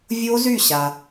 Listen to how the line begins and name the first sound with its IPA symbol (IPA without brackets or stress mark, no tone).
vʲ